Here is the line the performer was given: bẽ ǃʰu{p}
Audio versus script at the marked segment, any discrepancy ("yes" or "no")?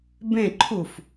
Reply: yes